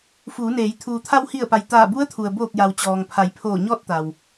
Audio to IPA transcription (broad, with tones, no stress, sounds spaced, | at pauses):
f uː˩˧ n eː˩˧ j t̪ʰ uː˩ t̪ʰ a˧ w h i˧˩ ə̯ p a˩ j t̪ aː˧˩ b u˧˥ ə̯ t̪ʰ u˩ ə̯ b oː˧˩ k̚ j a˩ w t͡ɕ ɔː˩ ŋ pʰ a˩˧ j pʰ oː˧˩ ɲ ɔː˥˨ t̚ t̪ a˩ w